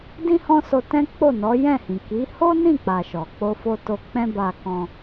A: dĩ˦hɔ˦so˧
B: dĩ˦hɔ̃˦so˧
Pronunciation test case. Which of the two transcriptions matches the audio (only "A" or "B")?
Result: B